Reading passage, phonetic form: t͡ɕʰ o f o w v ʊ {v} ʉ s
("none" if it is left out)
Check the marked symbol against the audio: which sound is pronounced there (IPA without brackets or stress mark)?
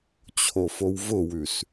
w